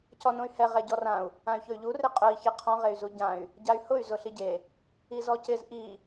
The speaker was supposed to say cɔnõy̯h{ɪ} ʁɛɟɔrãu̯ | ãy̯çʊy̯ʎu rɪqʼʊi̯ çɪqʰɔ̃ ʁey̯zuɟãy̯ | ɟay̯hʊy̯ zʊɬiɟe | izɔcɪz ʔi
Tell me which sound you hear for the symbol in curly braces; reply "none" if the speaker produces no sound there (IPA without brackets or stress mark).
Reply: ɛ